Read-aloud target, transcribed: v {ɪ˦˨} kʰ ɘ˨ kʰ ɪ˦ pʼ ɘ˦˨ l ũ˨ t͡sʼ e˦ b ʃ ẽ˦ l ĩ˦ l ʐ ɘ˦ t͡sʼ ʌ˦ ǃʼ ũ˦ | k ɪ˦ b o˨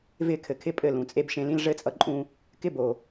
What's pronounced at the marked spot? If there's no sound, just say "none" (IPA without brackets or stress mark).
ɪ˦˨